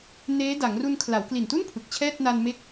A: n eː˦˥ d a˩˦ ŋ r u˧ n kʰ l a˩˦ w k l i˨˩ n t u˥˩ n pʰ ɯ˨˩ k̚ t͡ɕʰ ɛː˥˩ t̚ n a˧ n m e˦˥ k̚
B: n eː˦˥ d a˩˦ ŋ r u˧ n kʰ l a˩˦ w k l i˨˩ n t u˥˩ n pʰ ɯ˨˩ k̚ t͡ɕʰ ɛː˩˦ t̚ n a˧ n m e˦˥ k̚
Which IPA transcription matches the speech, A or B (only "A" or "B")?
A